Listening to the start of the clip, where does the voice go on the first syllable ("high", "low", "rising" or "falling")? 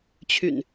low